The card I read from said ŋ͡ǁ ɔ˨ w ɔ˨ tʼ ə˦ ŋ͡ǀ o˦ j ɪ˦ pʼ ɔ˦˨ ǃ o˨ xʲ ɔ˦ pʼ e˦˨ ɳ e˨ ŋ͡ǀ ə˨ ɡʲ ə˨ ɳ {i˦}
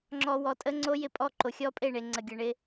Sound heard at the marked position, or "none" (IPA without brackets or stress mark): ɪ˦